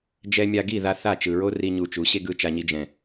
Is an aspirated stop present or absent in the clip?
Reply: absent